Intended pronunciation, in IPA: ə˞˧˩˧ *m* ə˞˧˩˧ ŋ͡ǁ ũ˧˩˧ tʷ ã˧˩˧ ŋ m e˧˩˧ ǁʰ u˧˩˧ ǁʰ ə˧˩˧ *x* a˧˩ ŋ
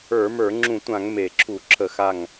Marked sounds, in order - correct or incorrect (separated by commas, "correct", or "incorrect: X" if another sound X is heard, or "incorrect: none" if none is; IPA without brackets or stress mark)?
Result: correct, correct